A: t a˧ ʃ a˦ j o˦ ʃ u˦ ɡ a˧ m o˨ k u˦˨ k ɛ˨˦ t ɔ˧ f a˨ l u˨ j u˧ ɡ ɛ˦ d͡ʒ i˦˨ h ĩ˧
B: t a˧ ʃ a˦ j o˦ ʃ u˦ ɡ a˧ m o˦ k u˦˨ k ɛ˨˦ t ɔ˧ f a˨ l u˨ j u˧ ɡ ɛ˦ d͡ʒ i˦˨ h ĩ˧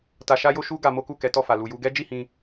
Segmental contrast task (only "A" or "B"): B